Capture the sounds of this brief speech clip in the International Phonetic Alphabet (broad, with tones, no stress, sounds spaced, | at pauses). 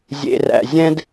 zʲ ḛ˨ r æ̰˨ zʲ ɛ̃˦ d